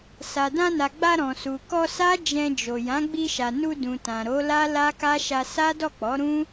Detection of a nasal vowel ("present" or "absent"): present